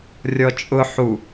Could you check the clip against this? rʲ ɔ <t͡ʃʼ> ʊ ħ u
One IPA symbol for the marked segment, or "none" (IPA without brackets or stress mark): t͡ʃʼ